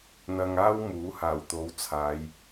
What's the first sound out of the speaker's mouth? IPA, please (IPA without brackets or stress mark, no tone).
n̪